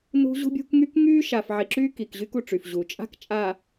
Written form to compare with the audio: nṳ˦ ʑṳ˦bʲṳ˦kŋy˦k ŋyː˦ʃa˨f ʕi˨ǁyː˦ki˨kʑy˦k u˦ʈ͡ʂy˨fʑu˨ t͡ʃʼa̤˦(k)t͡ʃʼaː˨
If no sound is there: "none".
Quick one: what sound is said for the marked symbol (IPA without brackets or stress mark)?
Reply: k